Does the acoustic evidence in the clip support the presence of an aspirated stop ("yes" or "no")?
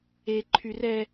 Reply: yes